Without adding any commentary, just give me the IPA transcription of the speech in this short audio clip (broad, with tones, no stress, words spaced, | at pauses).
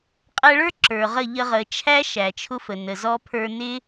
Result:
qʼæ˧ɭə˞˦ ǁə˞˨ʁə˦˨ ʎə˧ʁə˨t͡ʃʰæ˦ ʃæ˨t͡ʃʰʊ˦fə˨ nə˨zɔ˦ pʰə˞˧nɪ˦